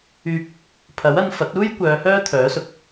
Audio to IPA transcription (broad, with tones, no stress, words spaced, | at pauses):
yː˧p̚ | pʰɐ˨˥wɐ˧nfɐ˨˥t̚ uː˥j kʷœː˨˧hœː˥t̪ʰœː˨˥sʊ˨k̚